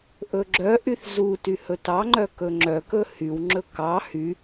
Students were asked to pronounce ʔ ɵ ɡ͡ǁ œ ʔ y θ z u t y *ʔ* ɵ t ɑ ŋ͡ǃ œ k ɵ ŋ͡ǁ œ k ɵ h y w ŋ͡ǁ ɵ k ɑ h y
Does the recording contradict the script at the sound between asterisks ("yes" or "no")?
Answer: yes